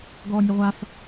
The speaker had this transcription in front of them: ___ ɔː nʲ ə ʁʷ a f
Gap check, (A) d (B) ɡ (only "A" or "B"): B